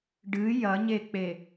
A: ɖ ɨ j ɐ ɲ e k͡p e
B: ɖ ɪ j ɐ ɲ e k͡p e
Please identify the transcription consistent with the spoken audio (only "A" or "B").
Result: A